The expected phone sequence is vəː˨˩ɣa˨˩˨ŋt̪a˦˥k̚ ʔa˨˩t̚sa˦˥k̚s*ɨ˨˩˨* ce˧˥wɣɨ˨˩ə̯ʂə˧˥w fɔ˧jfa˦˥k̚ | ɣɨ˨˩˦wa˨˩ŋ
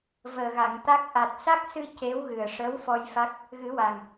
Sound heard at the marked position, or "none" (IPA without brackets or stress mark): ɨ˧